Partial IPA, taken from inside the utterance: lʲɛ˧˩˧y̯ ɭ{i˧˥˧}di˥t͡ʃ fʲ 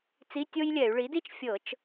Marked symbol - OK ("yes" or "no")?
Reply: no